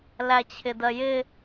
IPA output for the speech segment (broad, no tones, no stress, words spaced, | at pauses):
læt͡ɕʰɪdɜjɪ